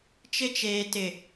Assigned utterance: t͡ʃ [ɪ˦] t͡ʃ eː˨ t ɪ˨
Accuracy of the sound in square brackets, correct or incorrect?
correct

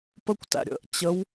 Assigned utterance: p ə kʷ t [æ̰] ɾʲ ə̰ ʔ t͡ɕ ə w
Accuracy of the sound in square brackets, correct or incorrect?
correct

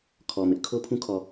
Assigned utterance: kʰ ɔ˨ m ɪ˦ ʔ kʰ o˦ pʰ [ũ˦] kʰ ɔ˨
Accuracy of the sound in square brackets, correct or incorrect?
correct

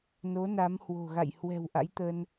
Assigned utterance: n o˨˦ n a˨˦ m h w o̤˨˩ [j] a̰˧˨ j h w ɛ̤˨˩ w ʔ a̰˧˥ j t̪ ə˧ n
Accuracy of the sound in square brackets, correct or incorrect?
incorrect: ɣ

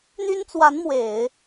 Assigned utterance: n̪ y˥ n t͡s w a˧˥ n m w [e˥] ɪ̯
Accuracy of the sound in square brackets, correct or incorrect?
incorrect: e˨˩˦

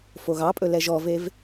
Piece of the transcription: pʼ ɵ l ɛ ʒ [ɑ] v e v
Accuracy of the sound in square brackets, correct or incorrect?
incorrect: ɔ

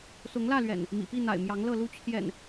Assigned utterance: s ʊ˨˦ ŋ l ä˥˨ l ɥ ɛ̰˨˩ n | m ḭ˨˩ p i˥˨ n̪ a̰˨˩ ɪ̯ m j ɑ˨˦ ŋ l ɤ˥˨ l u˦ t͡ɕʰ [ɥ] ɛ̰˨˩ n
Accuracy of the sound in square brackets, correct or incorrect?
incorrect: j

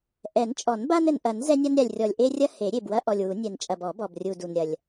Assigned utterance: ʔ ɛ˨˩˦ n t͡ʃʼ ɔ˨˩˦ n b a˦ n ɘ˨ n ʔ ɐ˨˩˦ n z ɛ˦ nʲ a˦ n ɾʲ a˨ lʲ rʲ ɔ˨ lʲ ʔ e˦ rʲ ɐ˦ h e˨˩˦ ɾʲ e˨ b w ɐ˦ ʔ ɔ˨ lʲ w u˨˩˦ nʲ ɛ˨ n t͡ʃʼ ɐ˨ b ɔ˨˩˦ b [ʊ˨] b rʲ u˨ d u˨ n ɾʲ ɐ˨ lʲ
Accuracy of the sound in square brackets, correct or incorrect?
incorrect: ɔ˨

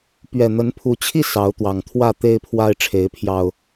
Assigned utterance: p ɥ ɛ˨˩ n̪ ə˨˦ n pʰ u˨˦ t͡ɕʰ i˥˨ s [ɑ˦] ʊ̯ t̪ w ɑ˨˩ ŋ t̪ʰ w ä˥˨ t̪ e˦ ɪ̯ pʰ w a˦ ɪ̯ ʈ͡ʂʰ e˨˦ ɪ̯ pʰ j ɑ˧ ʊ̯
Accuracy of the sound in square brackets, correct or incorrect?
incorrect: ɑ˨˦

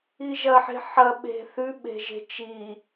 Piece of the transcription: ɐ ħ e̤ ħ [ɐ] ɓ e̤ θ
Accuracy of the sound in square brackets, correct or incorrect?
correct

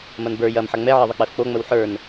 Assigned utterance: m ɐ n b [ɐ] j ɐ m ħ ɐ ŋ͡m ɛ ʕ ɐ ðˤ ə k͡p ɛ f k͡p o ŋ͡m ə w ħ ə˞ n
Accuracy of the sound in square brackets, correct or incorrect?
incorrect: ə˞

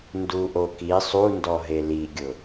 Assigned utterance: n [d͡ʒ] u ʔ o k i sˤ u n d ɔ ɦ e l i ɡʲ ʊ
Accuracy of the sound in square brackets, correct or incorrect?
incorrect: d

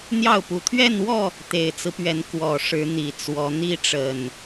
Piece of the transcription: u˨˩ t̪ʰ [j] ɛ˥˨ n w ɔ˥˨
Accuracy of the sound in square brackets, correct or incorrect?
incorrect: ɥ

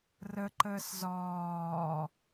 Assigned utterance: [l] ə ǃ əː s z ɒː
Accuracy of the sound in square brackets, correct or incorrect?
incorrect: r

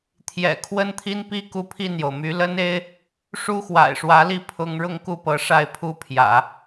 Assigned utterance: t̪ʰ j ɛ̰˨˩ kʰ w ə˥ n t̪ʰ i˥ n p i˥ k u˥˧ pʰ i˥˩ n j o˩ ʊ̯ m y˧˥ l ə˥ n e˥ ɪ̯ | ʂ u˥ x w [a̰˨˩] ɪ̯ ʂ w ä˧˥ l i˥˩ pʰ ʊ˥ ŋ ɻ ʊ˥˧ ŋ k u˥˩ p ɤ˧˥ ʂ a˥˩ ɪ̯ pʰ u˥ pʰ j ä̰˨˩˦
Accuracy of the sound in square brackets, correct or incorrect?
correct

